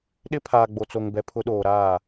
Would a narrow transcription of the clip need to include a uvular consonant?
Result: no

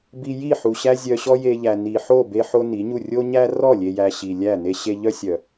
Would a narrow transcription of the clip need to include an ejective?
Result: no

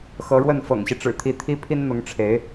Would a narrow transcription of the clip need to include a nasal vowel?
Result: no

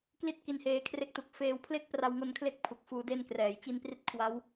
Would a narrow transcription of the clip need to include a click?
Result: no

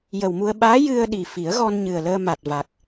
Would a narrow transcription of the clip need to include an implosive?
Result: yes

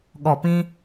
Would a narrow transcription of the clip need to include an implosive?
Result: yes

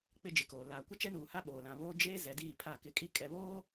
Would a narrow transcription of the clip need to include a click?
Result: no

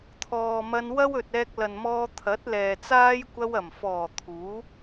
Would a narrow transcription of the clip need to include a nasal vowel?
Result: no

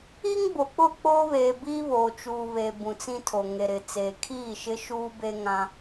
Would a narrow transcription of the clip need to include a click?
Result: no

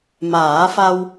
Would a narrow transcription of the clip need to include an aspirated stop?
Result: no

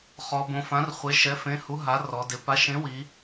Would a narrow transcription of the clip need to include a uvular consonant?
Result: yes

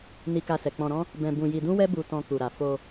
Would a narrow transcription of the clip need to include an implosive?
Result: no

